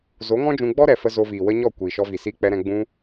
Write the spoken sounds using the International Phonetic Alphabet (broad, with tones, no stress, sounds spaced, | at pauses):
z o˨˦ ŋ ɔ̃˦ d͡ʒ ũ˧ ɡ͡b ɔ˦ ɾ ɛ˨ f ə˧ z o˧ v iː˨ w ə˦ ɲ ɔ˦˨ kʷ iː˨ ʃ ɔ˧ v i˨ s iː˧ k͡p ɛ˧ ɾ ɛ̃˧ ɡ͡b ũ˧